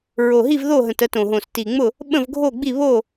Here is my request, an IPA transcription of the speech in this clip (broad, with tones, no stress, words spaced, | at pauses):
ɹo˨˩ɦi˥˨vðo˥˨ɦə̃˨˩t ə˥˨tõ˨˩ɦõ˨˩s ti˨˩ŋ͡mʊ˥˨ | ɓə̃˥˨vɡʱo˥˨ɡ͡bi˥˨ βo˥˨